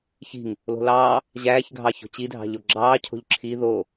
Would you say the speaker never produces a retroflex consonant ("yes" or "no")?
yes